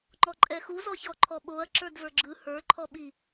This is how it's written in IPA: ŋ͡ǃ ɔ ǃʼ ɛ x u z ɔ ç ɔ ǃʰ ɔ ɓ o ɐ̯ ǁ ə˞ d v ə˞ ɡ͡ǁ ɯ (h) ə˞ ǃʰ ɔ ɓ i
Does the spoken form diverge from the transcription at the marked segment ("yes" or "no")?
no